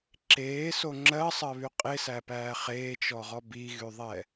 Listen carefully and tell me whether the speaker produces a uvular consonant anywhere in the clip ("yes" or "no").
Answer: yes